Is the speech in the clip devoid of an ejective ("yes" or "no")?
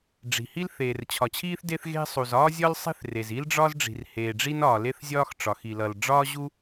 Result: yes